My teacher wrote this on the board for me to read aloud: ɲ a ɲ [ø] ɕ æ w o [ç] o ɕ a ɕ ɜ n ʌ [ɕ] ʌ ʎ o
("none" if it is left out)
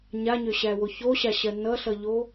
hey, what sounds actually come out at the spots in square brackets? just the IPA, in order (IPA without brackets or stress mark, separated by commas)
ø, ç, ɬ